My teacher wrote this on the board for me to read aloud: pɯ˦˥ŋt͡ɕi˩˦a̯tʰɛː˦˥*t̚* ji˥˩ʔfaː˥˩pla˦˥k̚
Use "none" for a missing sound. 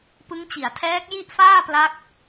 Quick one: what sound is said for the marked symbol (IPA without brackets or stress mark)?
k̚